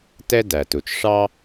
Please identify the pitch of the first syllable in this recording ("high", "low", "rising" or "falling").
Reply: high